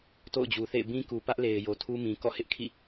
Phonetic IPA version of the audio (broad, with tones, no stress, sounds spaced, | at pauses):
t o̰˦˨ ʊ̯ d͡ʑ u˨ θ ḛ˦˨ ɪ̯ b ĩ˦ k u˨ p ä˦ ʔ l e˨ ɪ̯ j o˨ tʰ u˦ m ĩ˨ k ɔ̰˦˨ h ɪ˦ ʔ kʰ ḭ˦˨